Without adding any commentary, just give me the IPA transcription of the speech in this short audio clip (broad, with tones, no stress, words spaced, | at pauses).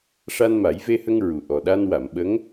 ʂa˧nma˨˩˦jve˧hə˧ŋ ɹu˨˩ʔɔ˨˩ ɗa˧nwa˨˩˨mɓə˧˥ŋ